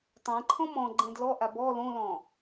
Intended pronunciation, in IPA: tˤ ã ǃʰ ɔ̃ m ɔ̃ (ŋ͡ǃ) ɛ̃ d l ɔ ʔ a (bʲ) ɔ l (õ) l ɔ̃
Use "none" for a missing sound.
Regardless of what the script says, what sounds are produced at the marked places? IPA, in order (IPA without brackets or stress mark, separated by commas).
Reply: ɡ͡ǃ, b, õ